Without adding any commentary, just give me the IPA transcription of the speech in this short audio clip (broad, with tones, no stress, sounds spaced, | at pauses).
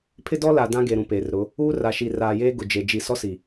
pʰ ɪ˦ d ɔ˦ l a˨ d ã˦ ɡ e˨ ɾ ũ˨ p eː˨ r ɾ ʊ˨˦ | uː˦ r a˨ ʃ i˨ r aː˨ j eː˦ ɡ ʊ˨ d͡ʒ e˨ d͡ʒ i˦˨ s ɔ˦ s i˨